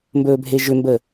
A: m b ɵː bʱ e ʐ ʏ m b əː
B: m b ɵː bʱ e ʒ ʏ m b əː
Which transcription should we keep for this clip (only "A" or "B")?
B